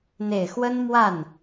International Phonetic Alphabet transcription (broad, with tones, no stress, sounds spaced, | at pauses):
n̪ e˨˩ ɪ̯ x w ə˥ n m w a˥˩ n